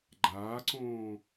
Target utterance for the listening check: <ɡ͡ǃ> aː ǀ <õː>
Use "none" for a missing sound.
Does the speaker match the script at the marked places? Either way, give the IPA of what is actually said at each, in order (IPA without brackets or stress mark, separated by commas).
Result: ɡ͡ǃ, õː